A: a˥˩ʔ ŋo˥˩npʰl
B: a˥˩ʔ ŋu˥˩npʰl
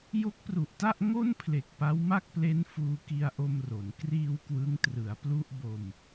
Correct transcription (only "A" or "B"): A